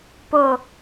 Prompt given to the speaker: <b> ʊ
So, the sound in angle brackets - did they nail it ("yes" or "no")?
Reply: no